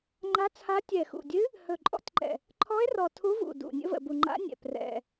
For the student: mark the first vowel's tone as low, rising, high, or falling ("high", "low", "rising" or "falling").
rising